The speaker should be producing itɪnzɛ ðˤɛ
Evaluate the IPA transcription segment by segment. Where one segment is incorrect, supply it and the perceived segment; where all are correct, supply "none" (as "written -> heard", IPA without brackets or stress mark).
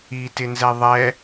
none